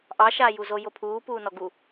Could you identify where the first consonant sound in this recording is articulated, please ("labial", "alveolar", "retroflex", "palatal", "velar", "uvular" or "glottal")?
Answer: glottal